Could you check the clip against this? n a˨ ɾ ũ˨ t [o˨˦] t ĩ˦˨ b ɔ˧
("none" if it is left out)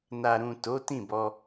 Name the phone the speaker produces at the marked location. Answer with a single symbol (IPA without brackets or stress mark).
o˨˦